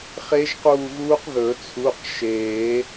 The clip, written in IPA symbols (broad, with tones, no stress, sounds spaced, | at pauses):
χ e˦˥ ʒ q uː˦˨ ɣ uː˦˥ q ð ɵ˨˩˦ t͡sʰ u˩˧˩ q ʃ eː˨˩˦